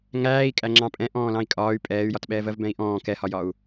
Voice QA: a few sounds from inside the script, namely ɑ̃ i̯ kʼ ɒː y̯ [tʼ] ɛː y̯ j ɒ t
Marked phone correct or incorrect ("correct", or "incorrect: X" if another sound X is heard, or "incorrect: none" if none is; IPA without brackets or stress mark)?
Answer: incorrect: pʼ